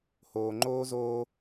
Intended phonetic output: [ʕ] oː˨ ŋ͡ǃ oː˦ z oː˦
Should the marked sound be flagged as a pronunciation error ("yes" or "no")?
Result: yes